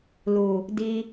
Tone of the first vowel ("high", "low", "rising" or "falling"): low